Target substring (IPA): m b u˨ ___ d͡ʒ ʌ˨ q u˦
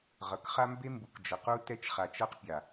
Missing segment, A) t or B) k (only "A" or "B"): B